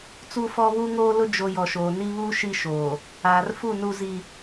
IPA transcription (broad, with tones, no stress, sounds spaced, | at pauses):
t͡s u˦ f ɔ˦ β u˦ ŋ oː˦ l ʊ˦ d͡ʒ o˨ j ɔ˨ ʃ oː˨ n iː˦ β uː˦ ʃ i˦ ʃ oː˨ | aː˨ r f u˦˨ n u˦ z i˦